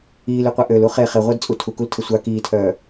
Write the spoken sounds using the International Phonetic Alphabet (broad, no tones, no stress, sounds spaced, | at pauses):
iː l y qʷ ɛ ʔ ø l u χ e χ e ʁʷ əː d t͡sʼ u tʰ u k u l tʰ ə sʷ a k iː tʰ œː